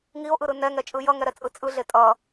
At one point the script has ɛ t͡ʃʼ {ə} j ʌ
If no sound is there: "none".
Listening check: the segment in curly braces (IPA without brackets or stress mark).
ɯ